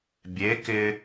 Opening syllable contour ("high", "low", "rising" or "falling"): rising